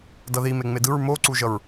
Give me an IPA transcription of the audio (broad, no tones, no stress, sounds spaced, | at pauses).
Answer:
d ʌ ð i m e ŋ͡m e d ɯ ɹ m o ǀ u ʒ ʌ ɹ